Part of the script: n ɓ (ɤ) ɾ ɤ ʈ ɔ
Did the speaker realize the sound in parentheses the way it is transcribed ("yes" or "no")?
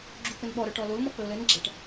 no